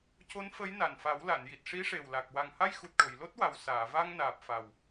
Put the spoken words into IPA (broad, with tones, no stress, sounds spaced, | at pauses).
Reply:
c o˧˥ n f ə˧˥ j n a˨˩ n f a˨˩˦ w l a˨˩˨ n j i˨˩ t̚ ʂ i˧˥ ʂ e˨˩ w l a˨˩ k̚ w a˨˩ ŋ h a˧ j x u˨˩ t̚ ʈ o˨˩˨ j l o˦˥ t̚ w a˨˩ w s aː˨˩˨ v a˧ ŋ n aː˨˩ p̚ f a˨˩ w